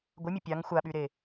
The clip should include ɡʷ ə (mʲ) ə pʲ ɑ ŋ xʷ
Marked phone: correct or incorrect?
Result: correct